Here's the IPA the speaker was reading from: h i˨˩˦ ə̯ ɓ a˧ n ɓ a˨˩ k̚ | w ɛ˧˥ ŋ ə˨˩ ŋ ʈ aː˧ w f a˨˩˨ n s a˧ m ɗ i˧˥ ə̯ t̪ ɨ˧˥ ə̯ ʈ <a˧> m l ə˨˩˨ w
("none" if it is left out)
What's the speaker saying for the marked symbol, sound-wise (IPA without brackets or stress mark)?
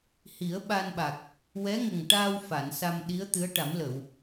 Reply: a˨˩˦